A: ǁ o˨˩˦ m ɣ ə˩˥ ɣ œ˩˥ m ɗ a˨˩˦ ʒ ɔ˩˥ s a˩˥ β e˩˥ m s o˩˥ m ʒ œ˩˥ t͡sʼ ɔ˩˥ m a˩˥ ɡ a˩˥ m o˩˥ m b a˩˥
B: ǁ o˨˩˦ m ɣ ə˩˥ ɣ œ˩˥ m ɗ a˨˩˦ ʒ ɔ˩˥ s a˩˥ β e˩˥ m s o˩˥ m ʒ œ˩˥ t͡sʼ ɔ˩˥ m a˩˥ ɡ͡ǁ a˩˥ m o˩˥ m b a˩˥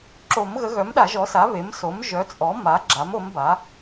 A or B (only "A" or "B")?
B